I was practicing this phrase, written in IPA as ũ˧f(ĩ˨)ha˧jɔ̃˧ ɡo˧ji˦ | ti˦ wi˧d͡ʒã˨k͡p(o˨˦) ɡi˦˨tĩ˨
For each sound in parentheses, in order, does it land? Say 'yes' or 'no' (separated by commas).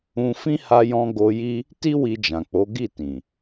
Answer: no, yes